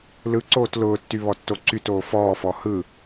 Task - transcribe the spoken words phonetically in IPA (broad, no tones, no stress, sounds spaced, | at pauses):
l ɯ ǀ oː t l ʊː tː y β ɔ tː o ǀ y t oː f ɔː f ɔ h ɯ